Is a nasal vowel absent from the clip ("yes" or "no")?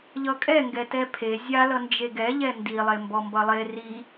yes